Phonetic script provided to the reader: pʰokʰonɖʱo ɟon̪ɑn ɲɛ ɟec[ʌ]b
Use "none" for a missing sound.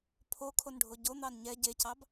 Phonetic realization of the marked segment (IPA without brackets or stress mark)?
ɑ